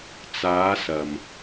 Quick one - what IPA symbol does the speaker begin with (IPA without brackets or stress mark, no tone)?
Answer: t͡s